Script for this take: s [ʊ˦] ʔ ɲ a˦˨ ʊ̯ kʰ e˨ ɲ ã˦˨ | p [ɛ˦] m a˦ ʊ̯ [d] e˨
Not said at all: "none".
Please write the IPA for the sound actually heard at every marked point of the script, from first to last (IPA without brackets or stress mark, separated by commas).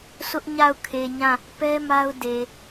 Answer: ʊ˦, ɛ˦, d